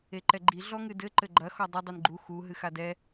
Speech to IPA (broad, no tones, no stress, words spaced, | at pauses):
eǃɛɡ͡ǃi ɮɔŋɨdɘ ǃɘɡ͡ǃɐ xɔdˤɘ dˤinɡ͡ǃu xu ɦɨxadɛ